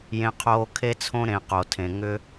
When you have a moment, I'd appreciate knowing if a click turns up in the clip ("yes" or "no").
no